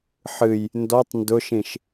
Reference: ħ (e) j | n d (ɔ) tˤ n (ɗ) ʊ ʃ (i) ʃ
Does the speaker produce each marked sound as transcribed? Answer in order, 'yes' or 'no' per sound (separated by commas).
no, yes, no, no